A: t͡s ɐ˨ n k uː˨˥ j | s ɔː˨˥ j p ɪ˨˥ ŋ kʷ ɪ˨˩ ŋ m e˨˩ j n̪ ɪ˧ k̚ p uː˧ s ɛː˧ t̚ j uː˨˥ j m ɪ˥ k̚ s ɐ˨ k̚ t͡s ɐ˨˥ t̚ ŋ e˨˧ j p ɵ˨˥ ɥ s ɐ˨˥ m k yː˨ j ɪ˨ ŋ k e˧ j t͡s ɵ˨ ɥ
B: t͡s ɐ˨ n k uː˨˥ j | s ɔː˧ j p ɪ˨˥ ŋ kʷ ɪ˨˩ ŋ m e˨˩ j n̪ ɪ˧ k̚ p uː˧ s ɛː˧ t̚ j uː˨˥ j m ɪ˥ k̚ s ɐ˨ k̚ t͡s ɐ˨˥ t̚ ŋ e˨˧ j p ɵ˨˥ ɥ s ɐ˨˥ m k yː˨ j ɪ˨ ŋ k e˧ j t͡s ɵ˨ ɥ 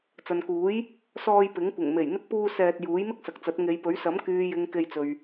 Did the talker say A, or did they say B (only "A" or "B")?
B